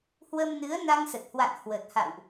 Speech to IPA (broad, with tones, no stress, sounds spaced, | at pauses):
h w ə˧ m n ɨ˨˦ ə̯ n a˧ ŋ s ə˨˩ t̚ h w a̰˧˨ n h w ə˨˩ t̚ h a̰˧˨ w ʔ